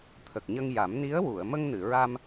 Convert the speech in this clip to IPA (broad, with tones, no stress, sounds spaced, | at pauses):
t̪ʰ ə˨˩ k̚ ɲ ə˧ ŋ j a˨˩˦ m n i˧˥ ə̯ w u˨˩˨ ə̯ m ə˧ ŋ n ɨ˨˩˨ ɹ a˧ m